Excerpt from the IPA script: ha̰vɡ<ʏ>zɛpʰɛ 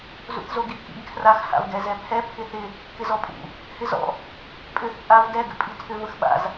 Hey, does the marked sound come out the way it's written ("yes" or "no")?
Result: no